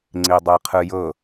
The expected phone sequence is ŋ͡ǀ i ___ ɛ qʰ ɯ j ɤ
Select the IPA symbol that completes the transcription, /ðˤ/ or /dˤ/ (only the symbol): dˤ